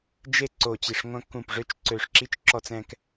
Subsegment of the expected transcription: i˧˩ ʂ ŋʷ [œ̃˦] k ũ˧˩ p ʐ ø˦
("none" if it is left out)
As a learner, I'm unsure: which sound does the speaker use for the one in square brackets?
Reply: œ̃˦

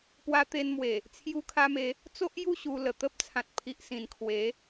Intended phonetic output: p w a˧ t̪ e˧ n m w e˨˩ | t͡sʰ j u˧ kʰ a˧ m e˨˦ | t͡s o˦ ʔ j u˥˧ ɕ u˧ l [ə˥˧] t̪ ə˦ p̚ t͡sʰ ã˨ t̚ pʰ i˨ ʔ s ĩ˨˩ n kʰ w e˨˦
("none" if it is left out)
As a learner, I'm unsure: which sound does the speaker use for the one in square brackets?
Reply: ə˨˩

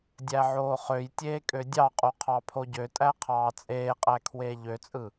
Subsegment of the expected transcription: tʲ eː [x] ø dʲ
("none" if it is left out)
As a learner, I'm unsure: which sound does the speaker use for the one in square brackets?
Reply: kʼ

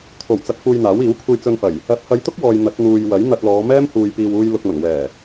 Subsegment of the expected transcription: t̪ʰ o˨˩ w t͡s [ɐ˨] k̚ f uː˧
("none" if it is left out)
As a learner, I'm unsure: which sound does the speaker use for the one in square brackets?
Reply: ɐ˨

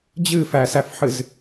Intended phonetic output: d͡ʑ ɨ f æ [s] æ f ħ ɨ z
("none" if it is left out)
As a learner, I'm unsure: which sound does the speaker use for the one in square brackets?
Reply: s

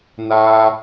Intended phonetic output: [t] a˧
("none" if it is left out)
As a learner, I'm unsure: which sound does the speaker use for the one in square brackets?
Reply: n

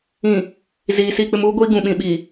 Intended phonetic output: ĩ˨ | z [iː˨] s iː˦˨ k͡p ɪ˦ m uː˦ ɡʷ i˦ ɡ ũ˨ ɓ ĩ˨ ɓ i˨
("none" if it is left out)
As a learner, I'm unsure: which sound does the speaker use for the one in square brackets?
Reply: iː˨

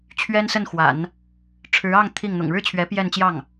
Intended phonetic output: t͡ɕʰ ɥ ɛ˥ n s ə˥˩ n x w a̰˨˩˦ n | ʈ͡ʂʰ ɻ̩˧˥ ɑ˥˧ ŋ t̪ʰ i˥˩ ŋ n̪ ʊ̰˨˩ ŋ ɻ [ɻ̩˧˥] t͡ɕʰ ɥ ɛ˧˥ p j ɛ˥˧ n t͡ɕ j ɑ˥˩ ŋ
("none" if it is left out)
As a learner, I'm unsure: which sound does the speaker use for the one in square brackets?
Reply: ɻ̩˥˩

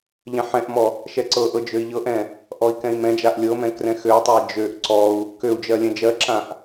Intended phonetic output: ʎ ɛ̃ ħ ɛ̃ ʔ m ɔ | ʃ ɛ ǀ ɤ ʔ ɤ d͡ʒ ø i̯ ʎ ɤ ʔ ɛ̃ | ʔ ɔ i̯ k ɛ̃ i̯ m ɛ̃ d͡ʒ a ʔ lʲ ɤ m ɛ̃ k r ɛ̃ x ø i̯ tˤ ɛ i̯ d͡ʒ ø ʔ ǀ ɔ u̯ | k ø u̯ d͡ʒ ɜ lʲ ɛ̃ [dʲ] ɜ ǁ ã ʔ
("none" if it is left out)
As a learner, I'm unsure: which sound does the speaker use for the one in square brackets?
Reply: d͡ʒ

